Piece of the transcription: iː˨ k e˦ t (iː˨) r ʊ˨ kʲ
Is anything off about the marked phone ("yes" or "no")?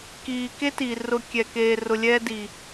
no